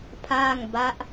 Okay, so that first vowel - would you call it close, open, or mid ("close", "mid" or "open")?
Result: open